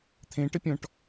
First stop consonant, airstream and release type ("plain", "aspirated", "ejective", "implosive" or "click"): aspirated